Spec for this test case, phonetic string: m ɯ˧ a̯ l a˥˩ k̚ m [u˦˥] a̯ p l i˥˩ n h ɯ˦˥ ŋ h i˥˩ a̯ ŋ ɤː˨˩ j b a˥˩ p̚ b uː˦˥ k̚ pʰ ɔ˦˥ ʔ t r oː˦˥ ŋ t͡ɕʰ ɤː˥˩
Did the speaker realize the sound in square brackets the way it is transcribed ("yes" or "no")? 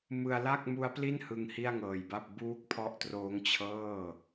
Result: yes